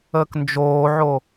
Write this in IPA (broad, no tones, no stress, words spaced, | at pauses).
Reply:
əːknd͡ʒoːʕo